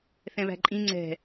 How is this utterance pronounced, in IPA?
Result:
θ ɛ̃ β æ̤ ǃʼ ĩ ŋ͡ǀ ɛ̤

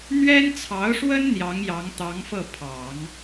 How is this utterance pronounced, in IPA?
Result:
n̪ ɥ ɛ˥ n t͡sʰ ɑ˧˥ ʊ̯ ʂ w ə˥ n n̪ j ɑ˧˥ ŋ j ɑ˧˥ ŋ t̪ ɑ˧˥ ŋ f ɤ˥˩ pʰ ɑ˨˩˦ ŋ

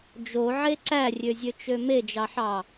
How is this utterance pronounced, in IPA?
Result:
d͡ʒ o ʕ e ǀ æ rʲ ø zʲ ø t͡ʃ ø m e d͡ʒ ɑ ħ ɑ

